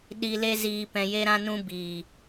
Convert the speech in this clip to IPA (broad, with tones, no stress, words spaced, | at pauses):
ɗi˧le˦ziː˧ pɛ̃˧je˦ɾã˦nũ˦ biː˨